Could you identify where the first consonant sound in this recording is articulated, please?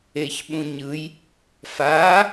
palatal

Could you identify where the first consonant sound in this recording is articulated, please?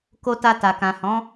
velar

